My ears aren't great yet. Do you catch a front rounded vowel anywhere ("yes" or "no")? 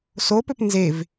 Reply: yes